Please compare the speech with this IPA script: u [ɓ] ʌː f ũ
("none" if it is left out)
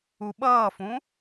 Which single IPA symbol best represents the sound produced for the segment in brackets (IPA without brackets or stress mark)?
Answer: ɓ